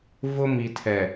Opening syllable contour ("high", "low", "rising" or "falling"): high